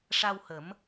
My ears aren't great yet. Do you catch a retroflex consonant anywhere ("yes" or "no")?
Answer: yes